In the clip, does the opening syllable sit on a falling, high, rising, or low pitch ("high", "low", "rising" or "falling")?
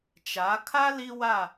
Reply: rising